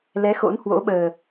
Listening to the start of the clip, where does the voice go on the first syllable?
rising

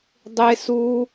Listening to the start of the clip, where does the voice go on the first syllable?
high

